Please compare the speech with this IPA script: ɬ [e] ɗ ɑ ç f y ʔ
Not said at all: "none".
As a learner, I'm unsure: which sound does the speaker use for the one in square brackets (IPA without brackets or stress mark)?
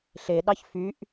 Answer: e